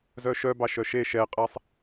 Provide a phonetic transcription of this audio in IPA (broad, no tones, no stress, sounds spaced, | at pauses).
z œ ʃ œ b ɑ ʃ œ ʃ e ʃ ɛ qʼ ɛ sˤ